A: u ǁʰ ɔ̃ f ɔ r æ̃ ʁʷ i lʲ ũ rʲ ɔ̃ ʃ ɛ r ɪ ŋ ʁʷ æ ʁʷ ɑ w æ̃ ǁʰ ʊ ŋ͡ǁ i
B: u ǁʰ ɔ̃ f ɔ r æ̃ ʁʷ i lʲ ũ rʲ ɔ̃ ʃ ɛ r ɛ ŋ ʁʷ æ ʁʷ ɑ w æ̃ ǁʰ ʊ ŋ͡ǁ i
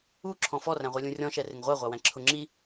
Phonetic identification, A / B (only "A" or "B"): A